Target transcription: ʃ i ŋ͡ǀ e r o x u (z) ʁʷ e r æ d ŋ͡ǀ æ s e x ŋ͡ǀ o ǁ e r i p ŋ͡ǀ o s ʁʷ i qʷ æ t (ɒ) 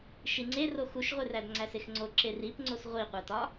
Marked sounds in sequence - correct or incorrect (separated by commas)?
incorrect, correct